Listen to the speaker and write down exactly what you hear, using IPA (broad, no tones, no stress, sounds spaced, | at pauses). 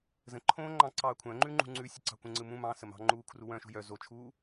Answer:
z ə̃ ǃʰ õː ŋ͡ǃ ɑ̃ ǀ ɑː kʷʰ œ̃ ŋ͡ǃ ʉ ŋ͡ǃ ṳ ŋ͡ǀ ʉ sʲ ə ǀ ɑ̤ kʷ ə̃ ŋ͡ǀ ɯ m ũ m ɑ̃ s ə m ɑ̤ ŋ͡ǃ uː kʰ r u w œ̃ ʃ ṳ j œ z o t͡ʃʰ uː